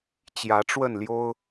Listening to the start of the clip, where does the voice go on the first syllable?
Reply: rising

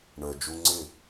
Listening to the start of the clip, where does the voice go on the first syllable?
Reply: low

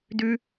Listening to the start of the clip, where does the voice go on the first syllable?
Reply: high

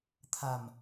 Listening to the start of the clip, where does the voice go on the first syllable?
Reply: low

